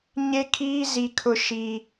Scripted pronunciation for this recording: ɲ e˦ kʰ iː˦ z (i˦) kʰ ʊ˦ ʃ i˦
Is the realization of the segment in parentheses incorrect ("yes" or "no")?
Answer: no